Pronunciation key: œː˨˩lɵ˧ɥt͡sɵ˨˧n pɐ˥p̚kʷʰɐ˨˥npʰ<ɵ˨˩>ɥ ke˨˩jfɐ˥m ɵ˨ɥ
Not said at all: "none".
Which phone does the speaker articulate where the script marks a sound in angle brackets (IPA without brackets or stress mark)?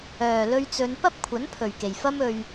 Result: ɵ˨˩